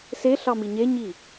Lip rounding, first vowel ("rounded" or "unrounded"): unrounded